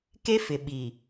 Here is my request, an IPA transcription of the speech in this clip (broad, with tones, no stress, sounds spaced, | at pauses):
k e˦ f ɪ˨ ɓ i˨